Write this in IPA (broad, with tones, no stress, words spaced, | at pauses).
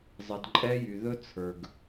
zˤə˨dǃʼɛ˦jy˨ ðɵ˦t͡sʰə˞˨ɡ